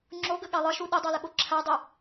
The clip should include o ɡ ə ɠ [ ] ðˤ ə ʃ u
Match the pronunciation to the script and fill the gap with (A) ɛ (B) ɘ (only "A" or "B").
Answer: A